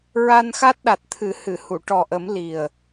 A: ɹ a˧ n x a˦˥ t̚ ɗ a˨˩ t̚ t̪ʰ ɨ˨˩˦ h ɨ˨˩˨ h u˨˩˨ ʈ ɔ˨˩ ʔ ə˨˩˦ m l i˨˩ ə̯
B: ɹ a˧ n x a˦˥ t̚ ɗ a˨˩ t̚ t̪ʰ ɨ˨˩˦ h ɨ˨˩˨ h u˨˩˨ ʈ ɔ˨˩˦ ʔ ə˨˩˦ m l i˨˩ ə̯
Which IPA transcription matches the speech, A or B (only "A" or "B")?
A